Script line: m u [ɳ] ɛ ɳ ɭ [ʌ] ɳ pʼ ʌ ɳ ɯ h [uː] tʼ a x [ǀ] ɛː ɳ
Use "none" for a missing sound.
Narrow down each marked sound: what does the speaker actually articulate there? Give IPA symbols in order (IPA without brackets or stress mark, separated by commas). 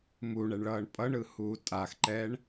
ɳ, ʌː, uː, ǃ